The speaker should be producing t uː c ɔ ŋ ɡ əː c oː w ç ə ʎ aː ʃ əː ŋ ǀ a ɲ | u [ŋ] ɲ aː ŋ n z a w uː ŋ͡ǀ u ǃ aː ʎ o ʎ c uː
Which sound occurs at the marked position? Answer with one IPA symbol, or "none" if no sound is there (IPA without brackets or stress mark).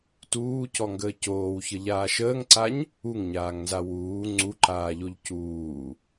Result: ŋ